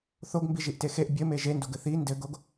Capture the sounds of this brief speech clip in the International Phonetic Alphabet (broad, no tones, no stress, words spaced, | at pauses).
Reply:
θoɡmbiʒiʔte xeʔ bʲɘme ʒendoɡɘ θi ndɘɡoɡ